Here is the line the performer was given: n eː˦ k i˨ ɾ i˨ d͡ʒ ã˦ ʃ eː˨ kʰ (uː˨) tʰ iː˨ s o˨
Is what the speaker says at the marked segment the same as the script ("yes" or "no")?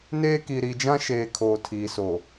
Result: no